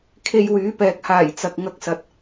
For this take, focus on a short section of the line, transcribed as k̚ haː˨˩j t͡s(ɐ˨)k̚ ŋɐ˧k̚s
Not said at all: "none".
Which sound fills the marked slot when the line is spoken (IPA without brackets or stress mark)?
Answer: ɐ˨